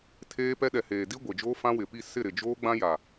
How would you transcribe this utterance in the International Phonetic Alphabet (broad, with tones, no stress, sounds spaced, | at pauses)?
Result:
tʰ eː˦ p ɛ˦ ɗ ɛ˨ h eː˨ d i˦ ɡʷ e˨ d͡ʒ oː˦ f ã˦ w ɪ˨ p i˦˨ s ɪ˦˨ ɾ ɪ˨ d͡ʒ oː˦ ɡ͡b ã˦ j a˨